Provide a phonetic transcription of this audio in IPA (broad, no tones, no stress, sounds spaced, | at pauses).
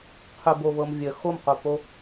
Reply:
qʰ ɵ b o v ɤ m vʲ ə x o m q o p o